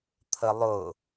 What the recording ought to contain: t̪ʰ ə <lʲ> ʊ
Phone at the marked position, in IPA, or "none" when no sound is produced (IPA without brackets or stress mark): lˠ